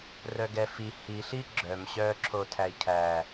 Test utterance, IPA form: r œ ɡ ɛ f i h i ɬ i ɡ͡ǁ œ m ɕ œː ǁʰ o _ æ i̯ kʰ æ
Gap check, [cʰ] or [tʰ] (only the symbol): tʰ